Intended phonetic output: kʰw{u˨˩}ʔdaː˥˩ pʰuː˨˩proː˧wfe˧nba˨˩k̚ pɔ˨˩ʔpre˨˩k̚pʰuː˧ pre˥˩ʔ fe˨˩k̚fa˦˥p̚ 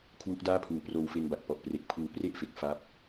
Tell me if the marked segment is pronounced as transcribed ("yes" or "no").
no